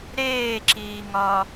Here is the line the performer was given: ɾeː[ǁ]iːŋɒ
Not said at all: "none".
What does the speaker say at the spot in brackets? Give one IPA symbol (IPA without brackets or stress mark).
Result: ǁ